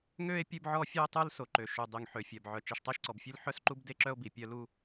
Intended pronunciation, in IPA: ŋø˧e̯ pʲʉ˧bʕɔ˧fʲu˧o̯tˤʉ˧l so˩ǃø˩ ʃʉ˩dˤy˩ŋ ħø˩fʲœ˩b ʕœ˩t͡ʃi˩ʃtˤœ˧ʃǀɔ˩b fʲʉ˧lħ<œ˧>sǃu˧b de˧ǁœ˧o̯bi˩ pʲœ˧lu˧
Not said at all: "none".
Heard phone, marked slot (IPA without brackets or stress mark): œ˧